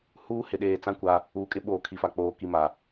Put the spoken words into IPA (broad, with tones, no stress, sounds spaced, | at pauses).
h uː˦ h ɪ˨ ɗ eː˨ t͡s ã˦ kʷ a˦ | uː˨˦ kʼ ɪ˦ ɓ oː˨ kʰ i˨ f a˨ k͡p oː˨ k i˨ m a˨